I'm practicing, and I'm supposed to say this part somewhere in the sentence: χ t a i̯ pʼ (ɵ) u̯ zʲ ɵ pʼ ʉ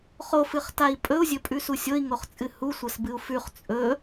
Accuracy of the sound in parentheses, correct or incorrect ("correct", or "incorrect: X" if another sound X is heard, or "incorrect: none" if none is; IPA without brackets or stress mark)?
correct